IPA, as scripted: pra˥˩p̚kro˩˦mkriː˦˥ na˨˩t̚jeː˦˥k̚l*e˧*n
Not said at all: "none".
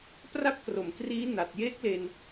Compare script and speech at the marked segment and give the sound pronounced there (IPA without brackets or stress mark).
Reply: e˧